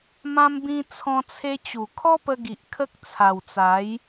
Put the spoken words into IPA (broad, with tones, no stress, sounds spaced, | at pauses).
m ã˦ m b ĩ˦ t͡sʰ ɔ̃˧ t͡sʰ e˧ t͡ɕ u˨˩ kʰ ɔ˦ p ə˧ ɡ i˨ ʔ kʰ ə˦ k̚ t͡sʰ a˨˩ w t͡s a˨˦ j